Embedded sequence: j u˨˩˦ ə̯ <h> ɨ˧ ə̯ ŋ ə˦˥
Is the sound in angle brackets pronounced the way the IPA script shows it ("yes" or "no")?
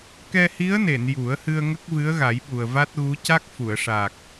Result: yes